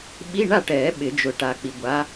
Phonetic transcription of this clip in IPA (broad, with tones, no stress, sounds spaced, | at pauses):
ɓ i˧˥˧ ɳ a˥˨ ʈ ɛː˨˩˦ ɓ ɪ˨˩˦ d͡ʒ ʊ˨ ʈ a˨˥ k͡p i˨ ɡʷ a˨˥